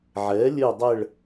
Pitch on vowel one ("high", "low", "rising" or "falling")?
rising